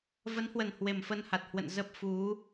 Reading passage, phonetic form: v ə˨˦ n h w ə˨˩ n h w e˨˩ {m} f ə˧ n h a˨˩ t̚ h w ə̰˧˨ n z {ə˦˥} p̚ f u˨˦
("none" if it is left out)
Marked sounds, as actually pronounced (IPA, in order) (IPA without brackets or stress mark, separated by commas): m, ə˦˥